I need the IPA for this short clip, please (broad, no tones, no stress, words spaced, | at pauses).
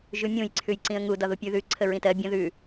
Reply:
ʒʉmʲũj ǀʰʉjǀĩə̯ŋu dɒðupʲʉ ðʉ ǀʰəɹĩtɜ bʲə̃ ðʉ